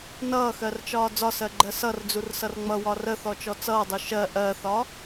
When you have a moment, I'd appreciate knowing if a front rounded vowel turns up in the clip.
no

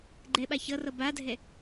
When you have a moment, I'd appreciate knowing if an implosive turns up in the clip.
yes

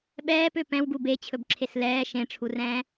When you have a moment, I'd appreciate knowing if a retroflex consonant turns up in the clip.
yes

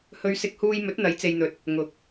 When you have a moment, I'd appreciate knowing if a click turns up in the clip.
no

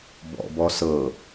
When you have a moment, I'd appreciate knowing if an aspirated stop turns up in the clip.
no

